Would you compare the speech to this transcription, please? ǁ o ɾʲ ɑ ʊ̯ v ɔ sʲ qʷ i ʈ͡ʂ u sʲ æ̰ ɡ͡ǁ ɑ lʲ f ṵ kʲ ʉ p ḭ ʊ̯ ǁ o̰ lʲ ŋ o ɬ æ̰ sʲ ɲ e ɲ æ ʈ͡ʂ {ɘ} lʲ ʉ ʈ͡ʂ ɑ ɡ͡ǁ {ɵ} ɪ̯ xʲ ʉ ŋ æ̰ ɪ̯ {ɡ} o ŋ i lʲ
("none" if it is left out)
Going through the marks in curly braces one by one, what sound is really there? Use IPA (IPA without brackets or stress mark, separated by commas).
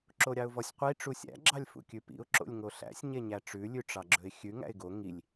ʉ, ɵ, ɡ